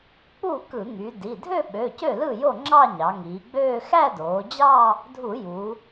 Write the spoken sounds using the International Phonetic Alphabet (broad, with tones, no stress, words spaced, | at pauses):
k͡pu˥˩kɯ˧˩˧ŋy˩˧di˩˧˩ dʱø˥˧ɓø˩˧˩ cø˥˩lɯ˥˩jo˥˩ ŋ͡ǁɑ˥˧ɲɑ˩˧ŋiː˩˧ɡ͡bøː˥˧ xæ˥˧doː˩˧d͡ʑɑ˥˧ | dʱu˧˩˧ ju˩˧